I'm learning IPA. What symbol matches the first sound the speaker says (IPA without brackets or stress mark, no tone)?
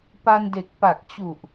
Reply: p